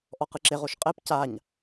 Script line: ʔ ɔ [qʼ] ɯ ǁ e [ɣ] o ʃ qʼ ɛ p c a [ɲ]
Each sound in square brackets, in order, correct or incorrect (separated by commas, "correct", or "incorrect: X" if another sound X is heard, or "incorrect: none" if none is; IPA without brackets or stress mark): incorrect: q, incorrect: ʁ, correct